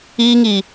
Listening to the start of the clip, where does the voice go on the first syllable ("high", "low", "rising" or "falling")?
high